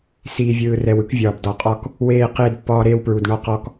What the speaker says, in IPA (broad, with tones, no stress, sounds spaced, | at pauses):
s iː˨ vʲ ɯː˨ r ɛ˨ w ɯ˦ k vʲ ɒː˨ b d ɒ˨ qʼ ɒ˦ k | w eː˦˨ q eː˦ d pː ɒː˦ ɾ eː˦ w p ɹ u˨ d ɳ ɒ˦ q ɔ˦ k